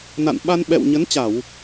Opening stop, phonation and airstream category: implosive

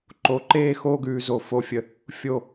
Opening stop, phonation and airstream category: click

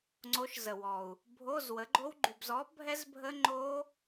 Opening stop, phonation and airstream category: click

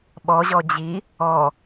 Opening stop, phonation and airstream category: implosive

